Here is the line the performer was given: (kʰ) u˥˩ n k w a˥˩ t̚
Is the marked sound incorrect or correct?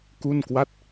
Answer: incorrect